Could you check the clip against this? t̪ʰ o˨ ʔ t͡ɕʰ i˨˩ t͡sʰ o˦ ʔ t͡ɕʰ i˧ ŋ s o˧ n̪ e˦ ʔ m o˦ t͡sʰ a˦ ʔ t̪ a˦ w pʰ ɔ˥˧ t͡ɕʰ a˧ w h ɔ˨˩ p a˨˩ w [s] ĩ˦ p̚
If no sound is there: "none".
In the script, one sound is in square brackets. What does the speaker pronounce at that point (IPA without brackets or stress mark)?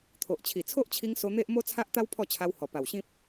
ɕ